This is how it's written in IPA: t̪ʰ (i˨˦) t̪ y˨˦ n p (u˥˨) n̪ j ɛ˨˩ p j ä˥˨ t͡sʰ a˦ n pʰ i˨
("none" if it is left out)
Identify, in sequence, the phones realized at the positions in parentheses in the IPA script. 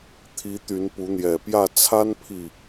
i˨˦, u˨˦

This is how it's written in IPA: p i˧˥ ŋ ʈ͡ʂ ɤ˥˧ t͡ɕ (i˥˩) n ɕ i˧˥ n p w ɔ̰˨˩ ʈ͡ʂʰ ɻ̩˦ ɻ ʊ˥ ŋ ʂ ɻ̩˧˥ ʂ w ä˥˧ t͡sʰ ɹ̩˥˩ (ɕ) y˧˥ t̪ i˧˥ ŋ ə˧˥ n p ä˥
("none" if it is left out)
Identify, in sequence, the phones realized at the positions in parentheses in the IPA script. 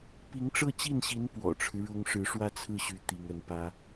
i˥˩, ɕ

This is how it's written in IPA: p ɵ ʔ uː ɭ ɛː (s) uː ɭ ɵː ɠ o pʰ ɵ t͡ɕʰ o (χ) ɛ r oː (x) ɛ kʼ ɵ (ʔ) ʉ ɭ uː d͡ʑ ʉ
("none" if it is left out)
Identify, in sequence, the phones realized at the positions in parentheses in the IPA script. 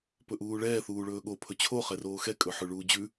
θ, χ, x, ħ

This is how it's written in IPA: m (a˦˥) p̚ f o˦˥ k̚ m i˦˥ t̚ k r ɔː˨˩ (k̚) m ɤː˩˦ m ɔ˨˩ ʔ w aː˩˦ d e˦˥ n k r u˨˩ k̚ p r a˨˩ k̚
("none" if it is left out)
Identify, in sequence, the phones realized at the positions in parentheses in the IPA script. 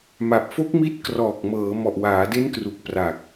a˨˩, k̚

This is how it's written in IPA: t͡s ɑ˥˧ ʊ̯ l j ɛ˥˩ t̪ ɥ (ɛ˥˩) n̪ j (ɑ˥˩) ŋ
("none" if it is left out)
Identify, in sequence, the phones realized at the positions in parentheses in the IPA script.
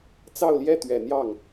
ɛ˨˩, ɑ˥˩

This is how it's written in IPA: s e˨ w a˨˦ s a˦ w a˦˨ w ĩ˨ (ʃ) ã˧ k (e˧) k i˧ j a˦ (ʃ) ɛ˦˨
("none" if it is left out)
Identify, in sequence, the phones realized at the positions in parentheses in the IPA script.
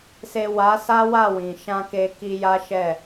ʃ, e˧, ʃ

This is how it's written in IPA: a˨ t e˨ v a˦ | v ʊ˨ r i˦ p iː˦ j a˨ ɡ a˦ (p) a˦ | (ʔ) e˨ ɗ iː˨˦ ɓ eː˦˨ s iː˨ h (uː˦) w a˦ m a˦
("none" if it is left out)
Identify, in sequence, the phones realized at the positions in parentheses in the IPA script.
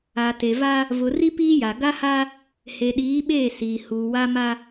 h, h, uː˨

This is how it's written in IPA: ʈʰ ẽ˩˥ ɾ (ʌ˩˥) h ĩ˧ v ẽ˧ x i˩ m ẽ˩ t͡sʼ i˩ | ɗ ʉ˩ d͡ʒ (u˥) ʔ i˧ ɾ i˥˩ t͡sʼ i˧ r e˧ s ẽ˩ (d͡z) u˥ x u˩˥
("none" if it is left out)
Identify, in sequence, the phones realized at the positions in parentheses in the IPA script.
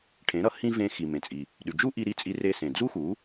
ʌ˩˥, u˥, d͡z

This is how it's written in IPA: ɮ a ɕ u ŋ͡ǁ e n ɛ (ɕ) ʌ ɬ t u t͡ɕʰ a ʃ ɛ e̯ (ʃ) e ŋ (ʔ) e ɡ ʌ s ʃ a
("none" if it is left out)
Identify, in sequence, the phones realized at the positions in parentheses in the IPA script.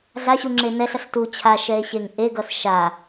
ɬ, ɕ, ʔ

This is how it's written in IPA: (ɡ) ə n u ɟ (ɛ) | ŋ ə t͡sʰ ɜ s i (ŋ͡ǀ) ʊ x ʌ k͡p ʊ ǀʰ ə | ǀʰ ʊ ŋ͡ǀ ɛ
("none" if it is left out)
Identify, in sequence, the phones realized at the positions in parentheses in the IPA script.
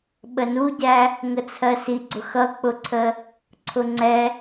ɓ, æ, ɡ͡ǀ

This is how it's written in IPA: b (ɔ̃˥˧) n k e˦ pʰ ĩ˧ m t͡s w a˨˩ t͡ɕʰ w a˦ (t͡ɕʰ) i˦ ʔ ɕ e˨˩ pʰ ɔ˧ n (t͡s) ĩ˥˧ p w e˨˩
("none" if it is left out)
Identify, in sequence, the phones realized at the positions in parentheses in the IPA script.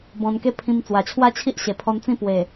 ɔ̃˧, t͡ɕʰ, t͡s

